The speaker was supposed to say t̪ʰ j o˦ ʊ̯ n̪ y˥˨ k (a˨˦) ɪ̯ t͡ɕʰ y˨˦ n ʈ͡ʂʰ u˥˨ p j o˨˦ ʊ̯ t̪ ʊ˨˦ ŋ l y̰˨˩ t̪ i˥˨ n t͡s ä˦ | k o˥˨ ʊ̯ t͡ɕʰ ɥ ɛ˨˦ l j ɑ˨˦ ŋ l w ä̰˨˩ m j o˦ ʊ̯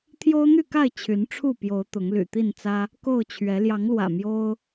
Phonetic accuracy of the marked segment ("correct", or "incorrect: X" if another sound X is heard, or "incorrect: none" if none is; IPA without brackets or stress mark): incorrect: a˥˨